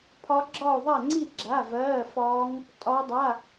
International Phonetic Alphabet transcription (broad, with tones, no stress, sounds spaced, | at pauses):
pʰ ɒ˦˥ ɡ͡ǁ ɒ˥˧ o̯ ðˤ a˥˧ ŋ͡ǀ i˥˧ ɡ͡ǁ a˧˥˧ v ɜː˧˥˧ f ɒː˦˥ ŋ | tʼ ɒ˦˥ dˤ a˧˥˧